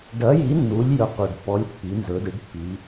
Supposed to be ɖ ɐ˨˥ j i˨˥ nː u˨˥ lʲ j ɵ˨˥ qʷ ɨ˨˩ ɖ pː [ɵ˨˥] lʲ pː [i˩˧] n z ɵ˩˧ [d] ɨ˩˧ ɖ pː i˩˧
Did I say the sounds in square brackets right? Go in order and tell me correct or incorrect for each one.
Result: incorrect: ɔ˨˥, correct, correct

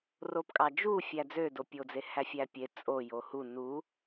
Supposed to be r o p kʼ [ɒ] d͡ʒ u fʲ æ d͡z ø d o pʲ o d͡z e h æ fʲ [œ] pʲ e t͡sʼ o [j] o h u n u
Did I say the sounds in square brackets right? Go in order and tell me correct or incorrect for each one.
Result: incorrect: ɑ, incorrect: æ, correct

